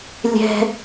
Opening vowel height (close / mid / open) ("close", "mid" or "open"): mid